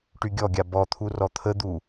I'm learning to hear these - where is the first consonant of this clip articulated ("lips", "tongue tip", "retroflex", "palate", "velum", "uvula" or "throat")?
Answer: retroflex